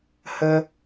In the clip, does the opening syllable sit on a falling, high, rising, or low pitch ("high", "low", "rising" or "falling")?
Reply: high